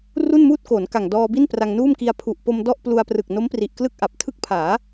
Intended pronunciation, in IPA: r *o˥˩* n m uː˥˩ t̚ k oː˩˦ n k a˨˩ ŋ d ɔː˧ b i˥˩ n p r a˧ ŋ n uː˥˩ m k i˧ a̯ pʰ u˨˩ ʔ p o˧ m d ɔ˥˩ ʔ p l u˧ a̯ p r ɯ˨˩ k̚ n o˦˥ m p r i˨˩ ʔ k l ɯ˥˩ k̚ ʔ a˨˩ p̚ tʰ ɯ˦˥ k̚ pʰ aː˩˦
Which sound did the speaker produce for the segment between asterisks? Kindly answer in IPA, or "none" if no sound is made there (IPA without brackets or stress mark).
u˥˩